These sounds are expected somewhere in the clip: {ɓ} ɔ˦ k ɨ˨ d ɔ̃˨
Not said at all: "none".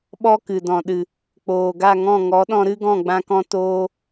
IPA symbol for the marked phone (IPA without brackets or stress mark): ɓ